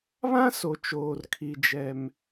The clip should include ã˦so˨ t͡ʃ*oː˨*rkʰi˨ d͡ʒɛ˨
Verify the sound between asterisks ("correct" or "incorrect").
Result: correct